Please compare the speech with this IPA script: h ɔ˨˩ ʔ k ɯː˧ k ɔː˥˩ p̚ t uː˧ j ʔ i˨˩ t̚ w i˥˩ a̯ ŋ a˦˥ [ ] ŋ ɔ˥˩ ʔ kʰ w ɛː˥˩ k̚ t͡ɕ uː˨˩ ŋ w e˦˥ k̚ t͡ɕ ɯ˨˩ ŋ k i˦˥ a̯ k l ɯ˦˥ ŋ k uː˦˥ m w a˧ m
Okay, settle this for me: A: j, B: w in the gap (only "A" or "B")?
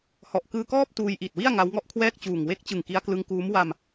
B